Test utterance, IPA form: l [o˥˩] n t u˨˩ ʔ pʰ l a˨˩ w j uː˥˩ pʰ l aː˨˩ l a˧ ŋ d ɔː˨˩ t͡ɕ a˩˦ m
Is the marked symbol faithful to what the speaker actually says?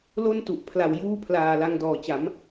yes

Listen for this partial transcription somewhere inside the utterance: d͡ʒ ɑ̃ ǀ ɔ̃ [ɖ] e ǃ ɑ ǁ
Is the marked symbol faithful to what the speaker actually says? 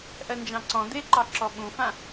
no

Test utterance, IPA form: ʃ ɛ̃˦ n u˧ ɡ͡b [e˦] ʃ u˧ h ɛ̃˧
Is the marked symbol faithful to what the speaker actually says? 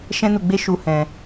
yes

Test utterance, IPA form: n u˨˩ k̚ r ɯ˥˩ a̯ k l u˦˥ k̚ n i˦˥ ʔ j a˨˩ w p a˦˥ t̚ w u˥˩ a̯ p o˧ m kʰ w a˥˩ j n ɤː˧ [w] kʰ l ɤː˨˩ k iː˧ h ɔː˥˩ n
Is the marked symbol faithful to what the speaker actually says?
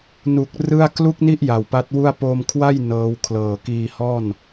yes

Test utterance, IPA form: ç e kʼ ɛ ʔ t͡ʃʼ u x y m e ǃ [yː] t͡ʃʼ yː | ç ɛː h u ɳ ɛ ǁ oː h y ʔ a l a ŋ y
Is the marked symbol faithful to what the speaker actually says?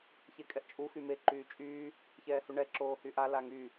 yes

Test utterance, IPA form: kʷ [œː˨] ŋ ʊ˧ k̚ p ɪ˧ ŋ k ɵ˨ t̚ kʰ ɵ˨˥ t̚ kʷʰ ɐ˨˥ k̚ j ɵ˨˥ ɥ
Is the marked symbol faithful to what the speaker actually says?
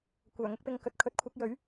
no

